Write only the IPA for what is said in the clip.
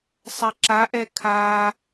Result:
sˤ ɛ ǁ a ʔ ɛ kʰ a

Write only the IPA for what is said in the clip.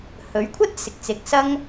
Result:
h ɵ˨˥ ɥ kʷʰ ɐ˥ t̚ s ɪ˨ k̚ t͡s ɪ˨˥ k̚ s ɐ˥ ŋ

